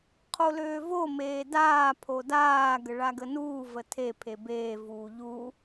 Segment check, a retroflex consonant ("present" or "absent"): present